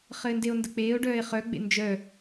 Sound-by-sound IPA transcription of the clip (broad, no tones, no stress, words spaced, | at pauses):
χɘːndeo̯ndək͡peːo̯ ɖœːe̯χœ ɡ͡bḛnd͡ʒœ